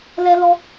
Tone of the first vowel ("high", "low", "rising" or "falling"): high